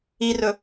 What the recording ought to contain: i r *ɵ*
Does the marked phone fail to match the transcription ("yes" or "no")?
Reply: no